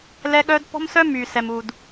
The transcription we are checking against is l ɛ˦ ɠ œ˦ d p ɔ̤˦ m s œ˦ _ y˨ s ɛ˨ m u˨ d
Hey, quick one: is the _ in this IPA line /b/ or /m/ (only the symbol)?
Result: m